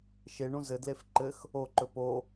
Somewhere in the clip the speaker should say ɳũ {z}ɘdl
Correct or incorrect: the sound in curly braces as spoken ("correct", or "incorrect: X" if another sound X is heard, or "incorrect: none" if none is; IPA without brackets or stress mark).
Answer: correct